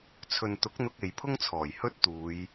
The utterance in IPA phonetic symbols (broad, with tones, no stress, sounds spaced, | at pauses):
t͡sʰ ɵ˨ n t̪ ʊ˨˥ k̚ n̪ ʊ˧ k̚ e˨ j pʰ ʊ˥ ŋ t͡sʰ ɔː˨˩ j h ɵ˥ t̚ t̪ uː˨˧ j